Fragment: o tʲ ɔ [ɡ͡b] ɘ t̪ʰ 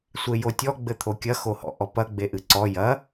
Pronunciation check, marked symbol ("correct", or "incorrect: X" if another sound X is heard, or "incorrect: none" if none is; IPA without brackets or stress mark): correct